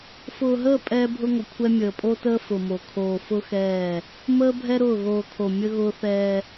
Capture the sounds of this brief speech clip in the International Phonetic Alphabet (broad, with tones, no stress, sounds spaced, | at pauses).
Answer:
f ʊː˨ ɦ əː˦˨ pʼ ɛː˦ bʱ ʊ˦ ŋʷ ə˨ kʷʰ ɛ˦ mʲ əː˨ pʼ o˦ t əː˦ f ʊ˨ m o˨ kʰ oː˨ f ʊ˦ x ɛː˦˨ | m əː˦ bʱ ɛ˦ ɾ ʊː˦˨ ɣ oː˨ kʰ o˨ mʲ ə˦ ɣ ʊː˦ θ ɛː˦